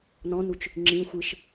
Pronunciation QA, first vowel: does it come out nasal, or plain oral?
nasal